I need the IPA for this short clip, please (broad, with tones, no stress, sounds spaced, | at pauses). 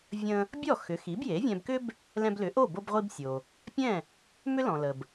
vʲ ə̃˧ | bʲ ɔ˥˩ x ʏ˩˥ x i˩˥ b j e˩˥ vʲ ɛ̃˧ b k ʏ˥ b | l ɛ̃˧ b l ʏ˩˥ ʔ o˥˩ b o˧ b ʁʷ i˧ b sʲ o˩ | pʲ ɛ̃˥˩ | m ʏ˥ l ɔ̃˩ l ə˩ b